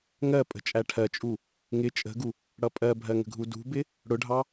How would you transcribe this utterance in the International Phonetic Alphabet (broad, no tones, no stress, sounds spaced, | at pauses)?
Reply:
ŋ ɜ pʼ ə̤ t͡ʃʼ æ ʈʰ ɜ t͡ʃʼ u | ŋ ɪ t͡ʃʼ ə̤ ɡ u | ɽ ʌ pʼ ɜ bʱ ɜ ŋ ə̤ ɡʱ u d ṳ b ɪ | ɽ ʊ ɖʱ ɑ